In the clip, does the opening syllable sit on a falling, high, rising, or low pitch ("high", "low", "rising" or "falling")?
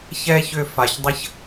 high